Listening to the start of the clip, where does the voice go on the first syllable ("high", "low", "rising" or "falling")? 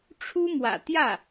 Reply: high